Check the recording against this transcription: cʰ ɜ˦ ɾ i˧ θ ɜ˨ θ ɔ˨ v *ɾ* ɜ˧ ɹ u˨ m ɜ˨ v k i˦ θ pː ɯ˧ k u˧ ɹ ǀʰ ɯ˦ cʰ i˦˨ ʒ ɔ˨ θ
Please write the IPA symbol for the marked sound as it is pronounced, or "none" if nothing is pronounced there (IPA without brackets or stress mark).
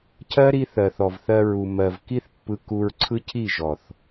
θ